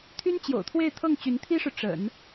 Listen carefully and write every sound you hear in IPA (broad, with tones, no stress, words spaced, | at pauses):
t̪ʰy˥nt͡ɕjo̰˨˩ʊ̯t̪ʰwe˥˧ɪ̯ t̪ʰɤ˥˩ŋ t͡ɕy˧˥nt̪ʰi˥ʂɻ̩˨ ʈ͡ʂə̰˨˩˦n